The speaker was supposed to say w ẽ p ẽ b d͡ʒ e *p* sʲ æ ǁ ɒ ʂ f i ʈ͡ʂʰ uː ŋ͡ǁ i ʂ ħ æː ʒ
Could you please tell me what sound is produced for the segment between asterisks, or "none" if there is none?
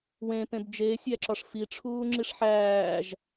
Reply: none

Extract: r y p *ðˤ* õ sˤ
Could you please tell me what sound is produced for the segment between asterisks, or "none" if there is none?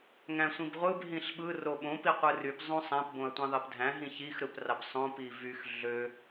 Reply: zˤ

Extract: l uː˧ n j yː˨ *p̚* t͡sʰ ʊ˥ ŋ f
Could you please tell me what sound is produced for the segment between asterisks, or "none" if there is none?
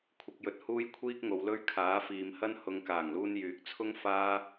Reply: k̚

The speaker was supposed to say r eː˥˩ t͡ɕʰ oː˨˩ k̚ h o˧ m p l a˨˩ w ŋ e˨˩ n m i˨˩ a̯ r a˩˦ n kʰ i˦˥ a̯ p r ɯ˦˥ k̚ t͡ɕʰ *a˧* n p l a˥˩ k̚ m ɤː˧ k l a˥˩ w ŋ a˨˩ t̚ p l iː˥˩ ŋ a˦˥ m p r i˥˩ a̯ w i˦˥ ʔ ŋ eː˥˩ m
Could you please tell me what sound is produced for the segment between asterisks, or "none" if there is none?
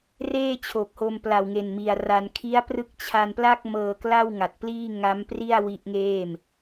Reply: a˧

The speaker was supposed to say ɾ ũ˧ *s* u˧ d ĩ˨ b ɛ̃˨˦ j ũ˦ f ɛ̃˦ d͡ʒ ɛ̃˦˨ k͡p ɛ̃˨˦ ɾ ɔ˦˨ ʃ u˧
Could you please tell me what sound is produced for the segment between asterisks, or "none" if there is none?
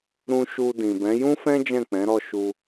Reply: ʃ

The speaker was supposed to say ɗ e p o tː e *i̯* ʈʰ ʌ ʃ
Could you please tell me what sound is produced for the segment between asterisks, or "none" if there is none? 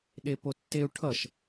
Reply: u̯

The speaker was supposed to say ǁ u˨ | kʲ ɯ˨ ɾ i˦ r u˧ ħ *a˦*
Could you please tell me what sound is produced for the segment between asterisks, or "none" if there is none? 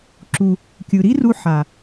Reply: a˨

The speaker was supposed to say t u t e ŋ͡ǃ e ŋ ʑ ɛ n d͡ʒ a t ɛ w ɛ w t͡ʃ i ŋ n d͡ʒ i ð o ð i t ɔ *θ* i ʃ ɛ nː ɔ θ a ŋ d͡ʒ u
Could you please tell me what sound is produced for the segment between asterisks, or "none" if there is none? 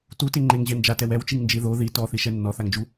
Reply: θ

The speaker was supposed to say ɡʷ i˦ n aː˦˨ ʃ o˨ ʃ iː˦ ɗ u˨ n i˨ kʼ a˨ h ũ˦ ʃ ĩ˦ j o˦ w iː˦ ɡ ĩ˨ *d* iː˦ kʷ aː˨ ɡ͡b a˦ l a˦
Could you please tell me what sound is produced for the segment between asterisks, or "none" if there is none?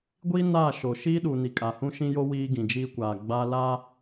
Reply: d͡ʒ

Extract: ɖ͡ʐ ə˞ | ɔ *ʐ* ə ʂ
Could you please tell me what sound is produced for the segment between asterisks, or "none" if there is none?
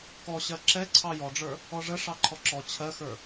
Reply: ʐ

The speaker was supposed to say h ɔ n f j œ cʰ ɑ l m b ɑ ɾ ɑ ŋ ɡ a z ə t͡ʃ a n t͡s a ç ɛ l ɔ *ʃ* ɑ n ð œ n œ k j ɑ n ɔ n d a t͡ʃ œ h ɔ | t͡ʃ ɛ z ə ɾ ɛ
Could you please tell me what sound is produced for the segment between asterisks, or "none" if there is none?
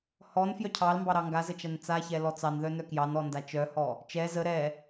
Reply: t͡s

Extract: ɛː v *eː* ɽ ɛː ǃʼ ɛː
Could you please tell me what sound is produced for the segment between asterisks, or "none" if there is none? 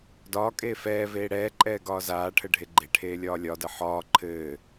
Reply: eː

